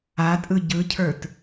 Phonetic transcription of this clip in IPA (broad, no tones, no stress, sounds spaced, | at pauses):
a tʼ ɯ ɟ ɯ cʰ ə˞ t